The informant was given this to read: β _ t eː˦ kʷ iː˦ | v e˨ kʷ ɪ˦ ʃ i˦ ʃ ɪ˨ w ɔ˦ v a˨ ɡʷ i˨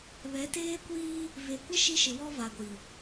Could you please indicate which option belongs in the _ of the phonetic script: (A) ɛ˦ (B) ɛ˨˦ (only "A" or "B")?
B